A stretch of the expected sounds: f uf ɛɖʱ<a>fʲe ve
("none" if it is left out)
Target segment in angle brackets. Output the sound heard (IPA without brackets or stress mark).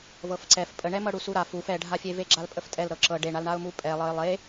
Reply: a